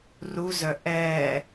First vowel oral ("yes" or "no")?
yes